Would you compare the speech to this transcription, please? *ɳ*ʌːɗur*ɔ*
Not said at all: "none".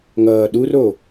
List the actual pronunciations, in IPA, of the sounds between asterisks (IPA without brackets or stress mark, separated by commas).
ŋ, o